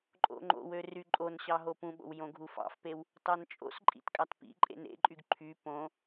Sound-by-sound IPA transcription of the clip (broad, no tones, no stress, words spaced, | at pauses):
ǃʼo̰ŋ͡ǃo̰wø ryǃʼonɕɑ ɦopũɓo̰w jõɡʱufɑ̰fpew | tɑnt͡ʃʼo̰sǃʼḭt kʼɑtpḭǃʼḛn ḛǃʼyɡ ǃʰy põ